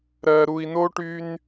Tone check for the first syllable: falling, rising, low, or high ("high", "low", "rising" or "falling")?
low